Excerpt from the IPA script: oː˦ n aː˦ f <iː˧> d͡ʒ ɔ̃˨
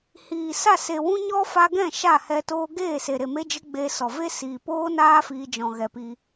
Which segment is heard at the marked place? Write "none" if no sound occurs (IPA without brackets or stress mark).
iː˧